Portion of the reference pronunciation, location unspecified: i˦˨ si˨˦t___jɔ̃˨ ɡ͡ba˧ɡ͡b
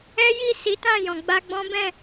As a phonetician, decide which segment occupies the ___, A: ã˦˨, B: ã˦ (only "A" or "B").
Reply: A